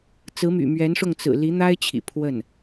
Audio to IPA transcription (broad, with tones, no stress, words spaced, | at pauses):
t͡sɹ̩˧˥my̰˨˩ mɥɛ˧˥nʂʊ˥˩ŋ t͡sɹ̩˨˩ li˧˥n̪a˥ɪ̯t͡ɕʰḭ˨˩ pʰwə˥˩n